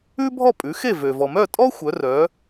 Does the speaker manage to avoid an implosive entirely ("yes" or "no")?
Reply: yes